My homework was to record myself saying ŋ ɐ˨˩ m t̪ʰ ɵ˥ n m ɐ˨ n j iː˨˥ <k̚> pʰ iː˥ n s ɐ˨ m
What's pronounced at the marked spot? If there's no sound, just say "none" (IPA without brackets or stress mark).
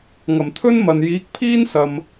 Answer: k̚